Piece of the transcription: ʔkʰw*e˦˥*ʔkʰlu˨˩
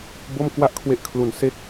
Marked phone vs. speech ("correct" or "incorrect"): correct